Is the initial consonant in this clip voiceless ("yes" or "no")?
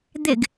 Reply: no